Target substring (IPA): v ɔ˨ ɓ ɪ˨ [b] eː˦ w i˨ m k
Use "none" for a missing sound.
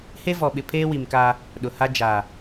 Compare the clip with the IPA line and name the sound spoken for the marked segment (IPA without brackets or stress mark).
pʰ